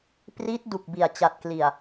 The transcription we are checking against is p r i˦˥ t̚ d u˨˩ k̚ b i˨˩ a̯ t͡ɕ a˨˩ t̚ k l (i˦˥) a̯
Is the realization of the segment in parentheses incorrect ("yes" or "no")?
yes